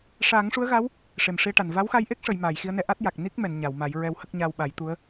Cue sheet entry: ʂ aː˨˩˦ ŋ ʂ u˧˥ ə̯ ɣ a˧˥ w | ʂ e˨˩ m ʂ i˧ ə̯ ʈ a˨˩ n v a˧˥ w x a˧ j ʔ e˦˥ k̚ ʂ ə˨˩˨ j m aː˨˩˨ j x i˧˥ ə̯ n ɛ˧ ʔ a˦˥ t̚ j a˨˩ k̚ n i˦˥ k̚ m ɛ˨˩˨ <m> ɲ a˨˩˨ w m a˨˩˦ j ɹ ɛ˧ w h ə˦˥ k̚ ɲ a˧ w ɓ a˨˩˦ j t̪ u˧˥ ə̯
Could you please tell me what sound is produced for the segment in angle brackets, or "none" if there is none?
n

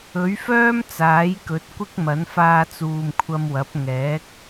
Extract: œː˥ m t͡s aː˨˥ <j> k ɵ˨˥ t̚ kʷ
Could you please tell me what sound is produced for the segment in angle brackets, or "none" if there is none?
j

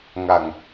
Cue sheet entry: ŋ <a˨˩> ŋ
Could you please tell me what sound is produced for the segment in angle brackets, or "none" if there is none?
a˨˩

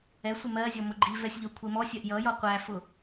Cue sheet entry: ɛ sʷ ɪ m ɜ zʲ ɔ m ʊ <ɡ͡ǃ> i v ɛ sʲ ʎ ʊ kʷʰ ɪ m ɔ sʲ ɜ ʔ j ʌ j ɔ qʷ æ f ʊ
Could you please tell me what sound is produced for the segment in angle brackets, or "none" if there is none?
ɡ͡ǃ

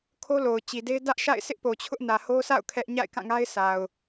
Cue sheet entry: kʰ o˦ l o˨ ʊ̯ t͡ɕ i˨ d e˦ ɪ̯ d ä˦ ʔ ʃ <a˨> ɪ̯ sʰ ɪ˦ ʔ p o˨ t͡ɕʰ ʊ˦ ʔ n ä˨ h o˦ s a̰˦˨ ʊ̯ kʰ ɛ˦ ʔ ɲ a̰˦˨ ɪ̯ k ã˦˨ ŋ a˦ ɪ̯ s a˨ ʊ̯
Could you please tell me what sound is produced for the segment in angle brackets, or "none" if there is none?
a̰˦˨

